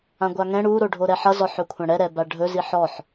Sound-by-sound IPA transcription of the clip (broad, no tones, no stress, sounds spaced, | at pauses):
ã ɡʷ a ŋ ɛ̃ ɽ u ɾ o ɖʱ o ɾ ɛ ħ ʌ z ɔ ħ ɵ kʷʰ ã ɽ ɛ ɾ ɛ b a ɖʱ ɵ z i ħ ɔ ħ